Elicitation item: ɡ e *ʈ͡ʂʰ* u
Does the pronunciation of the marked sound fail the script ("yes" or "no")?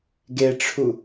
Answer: no